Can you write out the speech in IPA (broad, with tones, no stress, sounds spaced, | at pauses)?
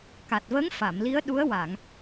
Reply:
k a˨˩ t̚ v ə˧˥ ŋ f a˨˩˨ m l i˧˥ ə̯ ɗ u˧˥ ə̯ w a˨˩˨ ŋ